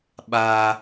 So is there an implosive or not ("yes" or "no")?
yes